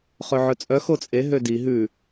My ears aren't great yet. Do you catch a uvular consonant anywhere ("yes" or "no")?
yes